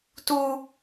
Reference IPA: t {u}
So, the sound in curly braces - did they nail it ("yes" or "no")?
yes